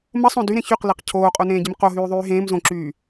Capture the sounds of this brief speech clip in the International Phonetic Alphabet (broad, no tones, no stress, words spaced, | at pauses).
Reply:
məsˤõ dyɾẽ çyqleq cʰoːqʼonẽːɟɪm qoɦyːðˤyː ɦẽːm zõǁyː